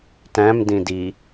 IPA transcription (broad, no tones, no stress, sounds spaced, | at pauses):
t æ̃ m d ĩ d i